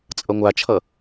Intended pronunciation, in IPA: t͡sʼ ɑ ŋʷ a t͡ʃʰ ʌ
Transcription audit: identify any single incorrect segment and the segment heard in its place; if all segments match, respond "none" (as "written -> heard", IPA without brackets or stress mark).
ɑ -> ʌ